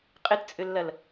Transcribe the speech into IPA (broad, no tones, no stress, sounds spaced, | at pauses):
qʼ ɪ t t͡sʼ ʏ lː ɐ l